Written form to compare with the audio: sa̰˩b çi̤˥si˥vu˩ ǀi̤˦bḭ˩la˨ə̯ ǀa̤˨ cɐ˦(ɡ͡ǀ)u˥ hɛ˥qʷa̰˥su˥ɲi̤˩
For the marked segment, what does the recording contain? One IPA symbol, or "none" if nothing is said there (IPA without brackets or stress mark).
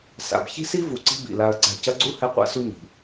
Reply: ɡ͡ǀ